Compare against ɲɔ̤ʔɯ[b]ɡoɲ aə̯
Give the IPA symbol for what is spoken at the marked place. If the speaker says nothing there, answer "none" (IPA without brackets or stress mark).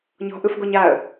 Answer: f